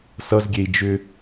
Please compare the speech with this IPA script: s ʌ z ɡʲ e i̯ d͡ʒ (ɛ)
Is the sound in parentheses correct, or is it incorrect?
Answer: incorrect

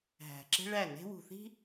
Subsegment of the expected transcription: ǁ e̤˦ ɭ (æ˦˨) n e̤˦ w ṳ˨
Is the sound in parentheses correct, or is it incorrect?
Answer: correct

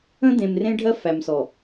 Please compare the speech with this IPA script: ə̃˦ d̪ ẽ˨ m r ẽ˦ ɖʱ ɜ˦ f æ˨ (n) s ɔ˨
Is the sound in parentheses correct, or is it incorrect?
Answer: incorrect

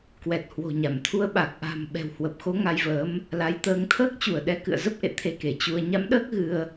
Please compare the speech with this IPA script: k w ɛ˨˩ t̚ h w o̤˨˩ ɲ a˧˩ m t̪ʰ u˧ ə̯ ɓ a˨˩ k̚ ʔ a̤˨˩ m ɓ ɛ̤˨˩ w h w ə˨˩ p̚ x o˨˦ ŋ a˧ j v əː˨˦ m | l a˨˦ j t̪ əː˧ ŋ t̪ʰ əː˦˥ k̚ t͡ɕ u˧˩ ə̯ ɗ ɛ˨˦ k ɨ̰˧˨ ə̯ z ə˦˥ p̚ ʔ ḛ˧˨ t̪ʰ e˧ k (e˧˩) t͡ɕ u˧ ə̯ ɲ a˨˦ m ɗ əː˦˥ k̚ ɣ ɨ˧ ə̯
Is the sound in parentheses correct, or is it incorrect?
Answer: correct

